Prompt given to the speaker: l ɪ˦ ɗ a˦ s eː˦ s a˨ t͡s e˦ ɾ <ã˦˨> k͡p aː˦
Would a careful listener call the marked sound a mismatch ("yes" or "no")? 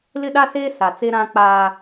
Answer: yes